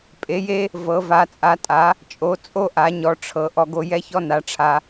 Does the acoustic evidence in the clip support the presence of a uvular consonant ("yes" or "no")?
no